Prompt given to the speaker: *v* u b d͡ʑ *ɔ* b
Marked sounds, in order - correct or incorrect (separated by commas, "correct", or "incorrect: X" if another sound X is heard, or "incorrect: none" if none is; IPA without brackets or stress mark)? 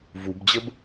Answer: correct, incorrect: ə